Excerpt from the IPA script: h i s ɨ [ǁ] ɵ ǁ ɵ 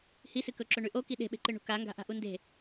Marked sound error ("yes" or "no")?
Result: yes